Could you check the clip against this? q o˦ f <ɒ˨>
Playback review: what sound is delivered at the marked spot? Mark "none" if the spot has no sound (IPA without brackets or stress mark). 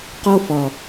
ɒ˨